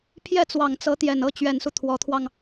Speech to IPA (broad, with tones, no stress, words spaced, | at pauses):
pʰjɛ˥˩t͡swɑ˨˩ŋ t͡sɤ˧˥t̪jɛ˨˩nɤ˥ t͡ɕɥɛ˨˩nsu˦ t̪ʰwɔ˧˥t̪ʰwɑ˧ŋ